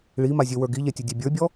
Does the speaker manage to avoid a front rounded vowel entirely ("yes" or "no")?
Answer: no